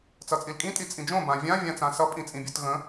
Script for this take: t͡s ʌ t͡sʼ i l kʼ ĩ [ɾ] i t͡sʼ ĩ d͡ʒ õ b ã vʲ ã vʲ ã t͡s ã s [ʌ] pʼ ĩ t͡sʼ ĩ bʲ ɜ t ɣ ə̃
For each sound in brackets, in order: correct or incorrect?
incorrect: tʼ, correct

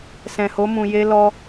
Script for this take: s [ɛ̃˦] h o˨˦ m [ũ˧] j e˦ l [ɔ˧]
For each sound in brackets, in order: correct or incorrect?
incorrect: ɛ̃˨, correct, correct

